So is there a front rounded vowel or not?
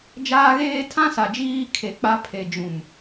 no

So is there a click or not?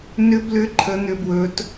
yes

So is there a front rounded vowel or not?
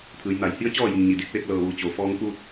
no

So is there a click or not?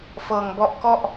no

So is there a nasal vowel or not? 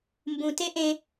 yes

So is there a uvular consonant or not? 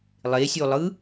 no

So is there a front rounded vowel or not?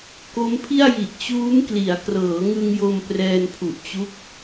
no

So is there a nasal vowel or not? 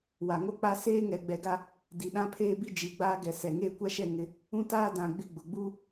yes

